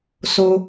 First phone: s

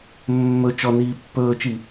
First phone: mː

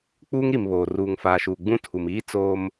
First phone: k͡p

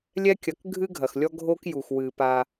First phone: lʲ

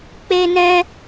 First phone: k͡p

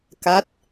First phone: k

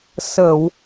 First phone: s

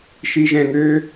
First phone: ʃ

